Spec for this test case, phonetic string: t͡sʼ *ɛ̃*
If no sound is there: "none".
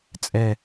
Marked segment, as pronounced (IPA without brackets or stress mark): ɛ